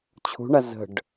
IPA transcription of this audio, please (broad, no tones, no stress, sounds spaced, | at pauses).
t͡ɕʰ ṳ ɳ a z ə̤ ɖ